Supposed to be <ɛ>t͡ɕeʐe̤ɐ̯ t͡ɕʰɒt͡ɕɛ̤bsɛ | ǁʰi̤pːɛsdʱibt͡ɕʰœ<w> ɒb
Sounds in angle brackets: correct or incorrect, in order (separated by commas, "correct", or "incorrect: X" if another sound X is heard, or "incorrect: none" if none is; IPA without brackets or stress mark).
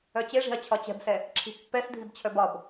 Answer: incorrect: œ, incorrect: b